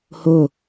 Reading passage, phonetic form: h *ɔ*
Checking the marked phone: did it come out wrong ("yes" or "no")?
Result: yes